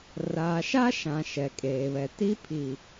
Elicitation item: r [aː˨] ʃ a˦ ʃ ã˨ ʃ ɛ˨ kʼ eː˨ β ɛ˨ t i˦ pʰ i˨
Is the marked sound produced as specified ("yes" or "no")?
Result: yes